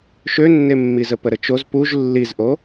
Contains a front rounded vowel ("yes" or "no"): yes